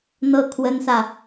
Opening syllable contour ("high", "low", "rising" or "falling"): falling